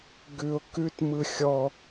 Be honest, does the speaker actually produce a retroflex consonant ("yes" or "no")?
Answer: no